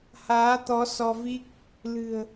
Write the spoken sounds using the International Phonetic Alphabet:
h aː˨˦ t̪ ɔ˨˦ s ɔ˧ v i˦˥ k̚ | l ɨ̤˨˩ ə̯

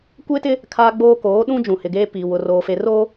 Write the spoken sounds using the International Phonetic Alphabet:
kʷ e˦ t ɪ˦ | kʰ aː˦ ɡ͡b oː˦ k oː˨˦ ɗ ũ˦ d͡ʒ ũ˨ h ɪ˨ ɡ eː˦ p i˨ w ʊ˨ r oː˨ f e˨ r oː˦

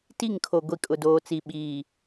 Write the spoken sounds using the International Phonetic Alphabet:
t i˦˨ ŋ kʰ o˨ ɡʷ i˨ kʼ ʊ˨ d oː˨ t͡s i˨ ɓ iː˨

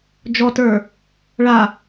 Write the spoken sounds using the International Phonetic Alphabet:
d͡ʒ ɔ t ə˞ | ɭ a

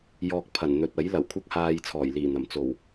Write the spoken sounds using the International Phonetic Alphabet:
j ɔː˧ k̚ pʰ ɐ˨˩ n n̪ ɵ˨ t̚ ɐ˨˥ j l ɐ˨˩ w kʷʰ ɐ˥ k̚ h aː˧ j t͡sʰ ɔː˨˩ j l iː˨˩ n̪ ɐ˨˩ m t͡s o˨˩ w

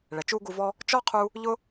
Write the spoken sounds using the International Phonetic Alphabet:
ɭ ɛ˨ t͡ʃ u˥ ɡ u˦ v ɔ˥ | t͡ʃ ɔ˥ qʰ u˦ | ʎ ʊ˥

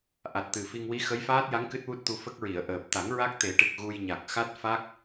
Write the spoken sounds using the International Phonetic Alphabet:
ʔ a˨˩ t̚ t̪ ɨ˨˩ f i˧ ŋ w i˧˥ x ə˧˥ j f aː˦˥ t̚ j a˧˥ ŋ k ɨ˦˥ t̚ w u˦˥ t̚ t̪ u˧ f ə˦˥ k̚ ɹ i˨˩˨ ə̯ ʔ əː˨˩ p̚ t̪ a˨˩˦ ŋ ɹ a˦˥ k̚ t̪ e˨˩˦ ʈ ɨ˨˩ k̚ ɣ u˧ j ɲ a˨˩ k̚ x a˦˥ t̚ f a˦˥ k̚

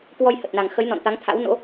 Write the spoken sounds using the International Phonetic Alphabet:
k w ɔ˧ j h ə˨˩ t̚ n a˨˩ ŋ x ə˨˦ j n ɔ̰˧˨ n t̪ a˨˦ ŋ t̪ʰ a̰˧˥ w n o̰˧˥

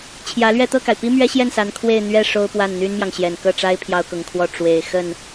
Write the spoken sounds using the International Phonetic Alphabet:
t͡ɕʰ j ä˧˥ l ɥ ɛ˥˧ t̪ ɤ˥˩ k a˩ ɪ̯ p i˥ m ɥ ɛ˥ ɕ j ɛ˥˩ n s a˧˥ n kʰ w e˥˧ ɪ̯ n̪ ɥ ɛ˥˩ ʂ o˥ ʊ̯ p w a˥˩ n n̪ y˥ n m j ɑ˨ ŋ ɕ j ɛ˨˩ n k ɤ˥˩ ʈ͡ʂ a˥ ɪ̯ pʰ j ɑ˥ ʊ̯ k ʊ˧˥ ŋ kʰ w ɔ˥˩ ʈ͡ʂ w e˨˩ ɪ̯ x ə˥˩ n

